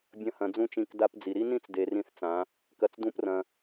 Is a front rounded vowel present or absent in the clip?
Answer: absent